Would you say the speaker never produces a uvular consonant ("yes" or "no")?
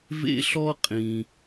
no